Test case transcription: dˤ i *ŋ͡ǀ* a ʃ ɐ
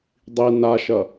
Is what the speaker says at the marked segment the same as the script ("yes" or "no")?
no